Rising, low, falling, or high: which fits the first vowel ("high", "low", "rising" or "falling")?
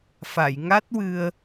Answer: low